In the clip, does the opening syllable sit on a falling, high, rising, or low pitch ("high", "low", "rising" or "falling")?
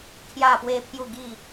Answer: falling